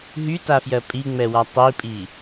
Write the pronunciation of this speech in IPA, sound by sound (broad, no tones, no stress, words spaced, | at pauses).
ɦytafjɜ pʼiŋ͡mɛwa tˤipʼi